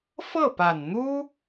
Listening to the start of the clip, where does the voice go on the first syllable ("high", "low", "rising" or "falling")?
falling